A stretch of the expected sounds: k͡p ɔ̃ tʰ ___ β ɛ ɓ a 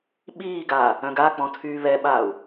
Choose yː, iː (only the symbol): yː